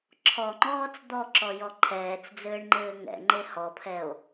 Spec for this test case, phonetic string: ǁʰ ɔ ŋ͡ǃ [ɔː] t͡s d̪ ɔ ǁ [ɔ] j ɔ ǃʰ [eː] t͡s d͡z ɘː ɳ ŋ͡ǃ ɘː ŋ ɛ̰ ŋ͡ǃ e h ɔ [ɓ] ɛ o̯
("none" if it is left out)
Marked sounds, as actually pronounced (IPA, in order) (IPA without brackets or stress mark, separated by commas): ɔː, ɔ, ɛː, pʰ